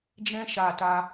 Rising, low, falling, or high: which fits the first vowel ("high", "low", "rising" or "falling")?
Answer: high